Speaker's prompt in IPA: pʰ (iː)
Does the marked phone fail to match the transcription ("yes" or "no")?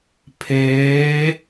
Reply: yes